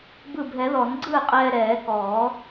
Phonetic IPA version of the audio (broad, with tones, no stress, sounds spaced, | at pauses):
b ɯ˧˩ bʱ ɛ˨˩˦ ð ɔ˨˩˦ n ɡ͡ǀ ɯː˥˩ qʼ ɛː˧ ɾ ɛː˨˩˦ k ɔː˨˩˦